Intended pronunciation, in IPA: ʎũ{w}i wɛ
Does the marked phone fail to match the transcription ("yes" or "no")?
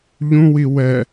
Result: no